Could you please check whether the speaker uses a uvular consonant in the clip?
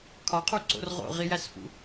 yes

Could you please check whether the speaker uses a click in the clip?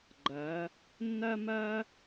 yes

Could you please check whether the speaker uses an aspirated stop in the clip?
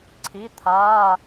yes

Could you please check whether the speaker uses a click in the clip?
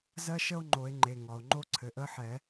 yes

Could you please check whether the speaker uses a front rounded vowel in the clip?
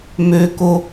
yes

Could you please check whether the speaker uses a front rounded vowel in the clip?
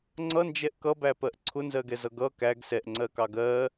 no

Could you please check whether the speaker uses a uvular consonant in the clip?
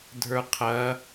yes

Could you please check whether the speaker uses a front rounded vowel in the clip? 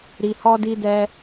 no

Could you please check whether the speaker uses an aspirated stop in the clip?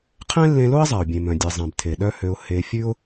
yes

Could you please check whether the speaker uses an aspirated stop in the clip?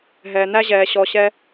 no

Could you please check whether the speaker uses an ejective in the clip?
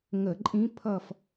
yes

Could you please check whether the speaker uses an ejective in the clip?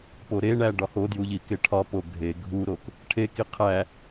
no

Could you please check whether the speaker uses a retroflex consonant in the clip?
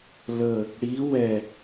yes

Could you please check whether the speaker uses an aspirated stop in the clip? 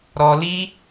no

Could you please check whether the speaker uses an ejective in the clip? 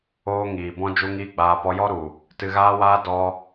no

